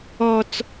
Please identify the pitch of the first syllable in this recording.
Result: high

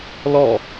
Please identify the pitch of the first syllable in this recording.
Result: falling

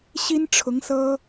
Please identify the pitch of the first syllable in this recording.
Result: high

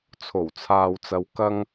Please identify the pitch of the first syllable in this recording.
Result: low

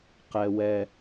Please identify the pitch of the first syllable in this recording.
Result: low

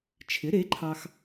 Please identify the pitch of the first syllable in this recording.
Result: rising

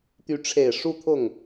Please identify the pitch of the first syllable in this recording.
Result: rising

